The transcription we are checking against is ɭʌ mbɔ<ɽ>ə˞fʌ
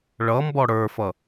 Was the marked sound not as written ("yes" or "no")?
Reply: no